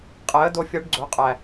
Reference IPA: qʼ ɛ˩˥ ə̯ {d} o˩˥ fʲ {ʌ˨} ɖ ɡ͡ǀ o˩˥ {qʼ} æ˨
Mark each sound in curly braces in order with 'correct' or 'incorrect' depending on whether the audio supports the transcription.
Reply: correct, incorrect: ʌ˩˥, correct

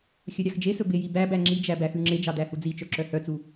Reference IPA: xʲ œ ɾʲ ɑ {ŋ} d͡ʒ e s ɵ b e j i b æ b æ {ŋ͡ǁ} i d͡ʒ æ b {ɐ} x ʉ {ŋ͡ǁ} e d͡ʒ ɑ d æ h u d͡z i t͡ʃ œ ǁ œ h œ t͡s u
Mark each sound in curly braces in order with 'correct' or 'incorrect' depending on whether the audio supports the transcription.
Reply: incorrect: x, correct, incorrect: æ, correct

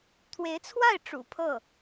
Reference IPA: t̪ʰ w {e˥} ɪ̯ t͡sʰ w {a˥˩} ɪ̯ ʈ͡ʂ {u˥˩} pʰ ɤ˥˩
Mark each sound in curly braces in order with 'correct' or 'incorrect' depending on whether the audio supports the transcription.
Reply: incorrect: e˧˥, correct, incorrect: ṵ˨˩

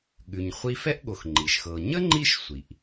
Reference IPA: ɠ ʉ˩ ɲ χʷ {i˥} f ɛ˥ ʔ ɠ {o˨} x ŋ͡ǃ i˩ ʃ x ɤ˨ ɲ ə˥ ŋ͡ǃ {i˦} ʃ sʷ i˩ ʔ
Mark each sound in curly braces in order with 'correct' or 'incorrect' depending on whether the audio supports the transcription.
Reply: incorrect: i˦, correct, correct

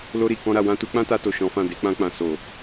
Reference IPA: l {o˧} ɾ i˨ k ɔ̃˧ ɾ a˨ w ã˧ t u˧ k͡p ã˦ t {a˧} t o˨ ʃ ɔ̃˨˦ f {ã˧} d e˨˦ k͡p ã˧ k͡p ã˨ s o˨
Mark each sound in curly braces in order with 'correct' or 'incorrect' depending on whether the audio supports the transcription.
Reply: correct, correct, incorrect: ã˦˨

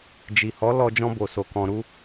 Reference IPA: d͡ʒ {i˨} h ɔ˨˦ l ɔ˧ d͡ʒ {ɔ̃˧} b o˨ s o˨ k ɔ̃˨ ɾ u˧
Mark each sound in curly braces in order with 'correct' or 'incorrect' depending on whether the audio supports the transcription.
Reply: correct, correct

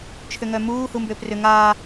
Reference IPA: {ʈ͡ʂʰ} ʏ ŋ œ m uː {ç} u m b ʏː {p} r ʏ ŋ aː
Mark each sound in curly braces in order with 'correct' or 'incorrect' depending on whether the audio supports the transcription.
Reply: incorrect: t͡ʃʰ, incorrect: h, correct

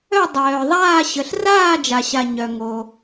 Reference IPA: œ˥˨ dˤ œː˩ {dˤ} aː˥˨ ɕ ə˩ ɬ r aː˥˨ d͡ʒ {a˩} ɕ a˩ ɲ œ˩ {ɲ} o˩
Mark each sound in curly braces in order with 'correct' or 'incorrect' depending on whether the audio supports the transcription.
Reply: incorrect: ðˤ, correct, incorrect: ŋ

